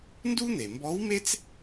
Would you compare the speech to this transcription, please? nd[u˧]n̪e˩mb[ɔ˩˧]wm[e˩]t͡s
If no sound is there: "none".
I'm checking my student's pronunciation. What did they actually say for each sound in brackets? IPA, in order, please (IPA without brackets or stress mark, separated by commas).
u˥, ɔ˧˥, e˥